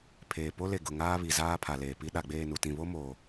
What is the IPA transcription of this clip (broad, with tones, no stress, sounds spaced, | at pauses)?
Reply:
pʰ eː˨ p o˦ l e˨ ɡ ʊ˨ ŋ aː˦ β i˨ z aː˦ pʰ a˨ l eː˨ p i˦ ɗ a˨ ɡ͡b eː˦˨ n u˨ t ĩ˨ β o˦ m oː˨